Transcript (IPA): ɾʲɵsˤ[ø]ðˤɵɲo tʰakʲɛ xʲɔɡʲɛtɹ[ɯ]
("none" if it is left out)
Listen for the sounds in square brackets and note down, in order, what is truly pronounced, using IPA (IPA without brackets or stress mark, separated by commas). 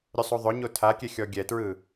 u, ɯ